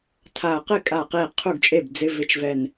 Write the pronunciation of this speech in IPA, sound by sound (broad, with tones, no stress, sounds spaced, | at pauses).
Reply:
tʰ a˧˩ ɐ̯ q ɪ˥˩ kʼ a˧˩ q i˧˩ qʰ u˥˩ ɡ t͡ʃʼ e˥˩ b d͡z ɪ˧˥˧ v ɪ˧˥˧ t͡ʃ v ɛ˧˩ n